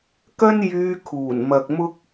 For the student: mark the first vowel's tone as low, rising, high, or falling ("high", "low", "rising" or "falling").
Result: high